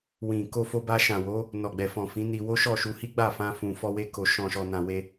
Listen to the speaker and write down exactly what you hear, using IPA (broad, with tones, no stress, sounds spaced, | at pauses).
w ĩ˨ k o˧ f o˧ b a˧ ʃ ã˨ w o˨˦ | n ɔ˨ ɡ͡b ɛ˨ f ɔ̃˨ f ĩ˨˦ n i˧ w o˦ ʃ ɔ˦˨ ʃ u˧ h i˦ ɡ͡b a˦˨ f ã˧ f ũ˨ f ɔ˧ w e˧ k o˨ ʃ ɔ̃˨ ʃ ɔ˨ n ã˨ w e˧